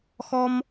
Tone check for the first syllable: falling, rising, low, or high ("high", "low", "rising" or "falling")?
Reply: high